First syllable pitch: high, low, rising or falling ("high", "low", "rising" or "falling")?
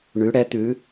rising